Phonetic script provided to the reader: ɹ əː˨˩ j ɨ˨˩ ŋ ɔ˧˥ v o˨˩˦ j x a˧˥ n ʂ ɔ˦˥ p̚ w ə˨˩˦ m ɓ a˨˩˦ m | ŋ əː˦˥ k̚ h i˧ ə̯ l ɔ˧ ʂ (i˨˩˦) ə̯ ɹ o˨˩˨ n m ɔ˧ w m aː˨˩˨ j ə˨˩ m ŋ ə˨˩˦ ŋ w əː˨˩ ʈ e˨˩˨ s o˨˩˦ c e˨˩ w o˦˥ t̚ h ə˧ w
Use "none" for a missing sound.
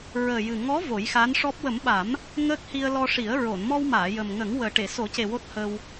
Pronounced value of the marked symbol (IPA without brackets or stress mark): i˨˩˦